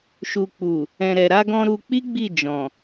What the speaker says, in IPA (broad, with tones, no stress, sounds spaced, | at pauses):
ʃ u˨ k͡p u˨ | ɛ̃˨ ɾ ɛ˨ ɾ a˧ ɡ ɔ̃˧ ɾ u˧ k͡p i˦ ɡ͡b i˦˨ d͡ʒ ɔ̃˨